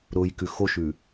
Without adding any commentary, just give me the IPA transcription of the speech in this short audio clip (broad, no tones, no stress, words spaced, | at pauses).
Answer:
ɾʊjkʉ xoʃʉ